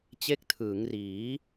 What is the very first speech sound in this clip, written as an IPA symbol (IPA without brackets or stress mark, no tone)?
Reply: t͡ɕ